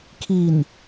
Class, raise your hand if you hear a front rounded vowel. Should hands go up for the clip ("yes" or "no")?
no